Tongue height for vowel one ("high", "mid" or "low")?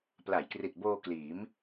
low